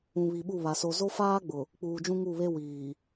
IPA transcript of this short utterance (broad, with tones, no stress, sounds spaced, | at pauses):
ũ˨ β i˨ ɓ u˦˨ β a˨ s o˨ z o˦ f aː˦ ɡ͡b ʊ˨ | k͡p uː˨ d͡ʒ ũ˦ ŋ u˦˨ β e˦ w iː˨